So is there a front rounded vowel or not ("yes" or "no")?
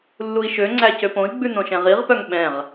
yes